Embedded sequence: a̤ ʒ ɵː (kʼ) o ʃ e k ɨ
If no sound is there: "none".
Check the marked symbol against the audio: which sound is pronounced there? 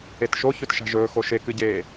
x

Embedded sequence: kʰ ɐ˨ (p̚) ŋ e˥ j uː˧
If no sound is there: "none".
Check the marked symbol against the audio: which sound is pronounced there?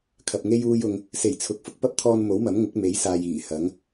p̚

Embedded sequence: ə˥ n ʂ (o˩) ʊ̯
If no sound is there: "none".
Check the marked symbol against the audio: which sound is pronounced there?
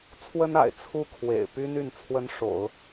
o̰˨˩˦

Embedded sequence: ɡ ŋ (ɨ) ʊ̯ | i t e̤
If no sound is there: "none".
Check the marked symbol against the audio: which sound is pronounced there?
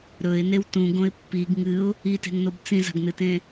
ɨ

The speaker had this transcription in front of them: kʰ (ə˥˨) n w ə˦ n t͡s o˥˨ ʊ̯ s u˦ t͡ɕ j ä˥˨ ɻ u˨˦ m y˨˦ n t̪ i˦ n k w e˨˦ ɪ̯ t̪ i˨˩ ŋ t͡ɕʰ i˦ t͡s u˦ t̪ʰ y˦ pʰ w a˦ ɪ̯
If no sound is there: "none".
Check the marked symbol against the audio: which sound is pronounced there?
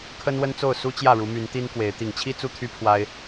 ə˦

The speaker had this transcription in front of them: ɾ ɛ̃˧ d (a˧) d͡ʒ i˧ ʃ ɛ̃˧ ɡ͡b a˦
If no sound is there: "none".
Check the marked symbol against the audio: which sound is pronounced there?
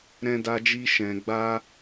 a˧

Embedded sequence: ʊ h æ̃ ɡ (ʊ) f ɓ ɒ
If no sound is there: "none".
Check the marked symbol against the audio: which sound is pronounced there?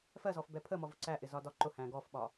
ɔ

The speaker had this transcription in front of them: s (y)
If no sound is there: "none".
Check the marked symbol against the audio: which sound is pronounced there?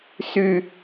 y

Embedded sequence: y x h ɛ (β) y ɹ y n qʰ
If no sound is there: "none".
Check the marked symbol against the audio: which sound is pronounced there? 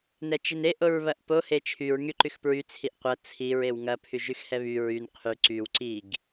β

